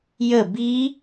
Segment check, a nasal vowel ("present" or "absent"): absent